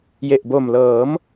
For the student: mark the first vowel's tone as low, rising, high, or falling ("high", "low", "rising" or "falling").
low